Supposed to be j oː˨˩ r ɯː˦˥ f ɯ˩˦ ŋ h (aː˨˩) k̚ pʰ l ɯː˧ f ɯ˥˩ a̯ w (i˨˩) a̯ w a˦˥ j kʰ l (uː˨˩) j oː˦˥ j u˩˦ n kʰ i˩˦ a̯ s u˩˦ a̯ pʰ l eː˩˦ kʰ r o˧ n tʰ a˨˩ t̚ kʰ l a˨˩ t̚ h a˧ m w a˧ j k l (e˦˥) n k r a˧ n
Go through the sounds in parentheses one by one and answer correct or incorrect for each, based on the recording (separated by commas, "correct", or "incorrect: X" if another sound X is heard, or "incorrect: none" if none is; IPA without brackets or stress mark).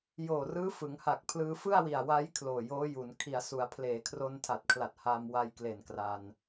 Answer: incorrect: a˨˩, correct, incorrect: oː˨˩, incorrect: e˨˩